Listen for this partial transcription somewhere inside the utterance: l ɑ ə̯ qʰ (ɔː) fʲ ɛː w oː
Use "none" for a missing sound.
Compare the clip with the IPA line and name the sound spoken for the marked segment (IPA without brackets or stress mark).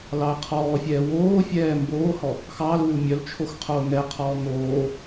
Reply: ɔː